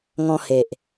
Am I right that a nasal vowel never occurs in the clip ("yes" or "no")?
no